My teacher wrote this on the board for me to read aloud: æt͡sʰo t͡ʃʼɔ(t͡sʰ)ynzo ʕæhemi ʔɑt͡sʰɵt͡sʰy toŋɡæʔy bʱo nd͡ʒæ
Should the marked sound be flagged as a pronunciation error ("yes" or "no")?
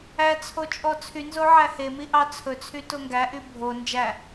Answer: no